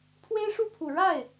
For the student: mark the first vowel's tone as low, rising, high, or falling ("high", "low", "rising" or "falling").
high